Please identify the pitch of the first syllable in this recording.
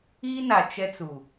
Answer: high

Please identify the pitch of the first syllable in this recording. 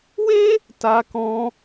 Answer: high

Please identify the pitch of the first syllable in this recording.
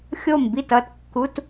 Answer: falling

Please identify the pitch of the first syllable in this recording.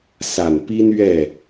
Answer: low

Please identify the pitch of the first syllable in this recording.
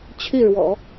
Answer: falling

